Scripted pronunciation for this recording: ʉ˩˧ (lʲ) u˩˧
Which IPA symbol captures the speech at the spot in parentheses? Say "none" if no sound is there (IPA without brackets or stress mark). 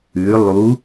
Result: lˠ